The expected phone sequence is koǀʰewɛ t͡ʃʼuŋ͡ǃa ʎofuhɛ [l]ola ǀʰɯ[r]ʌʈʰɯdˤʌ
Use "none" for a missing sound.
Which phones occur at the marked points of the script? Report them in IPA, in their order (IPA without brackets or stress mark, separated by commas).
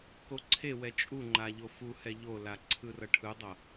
ʎ, r